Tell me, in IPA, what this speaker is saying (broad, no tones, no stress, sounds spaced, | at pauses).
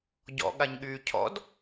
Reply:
ɟ ɔ̰ ɠ a ɲ ɠ yː cʰ ɔ̰ d